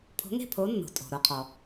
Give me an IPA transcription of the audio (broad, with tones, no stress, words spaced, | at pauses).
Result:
pʰo̤˨˥ŋe̤˥˨ pʰo˨˥nːo̤˩ tʼo̤˩ ɾo˩ qʰɔ˩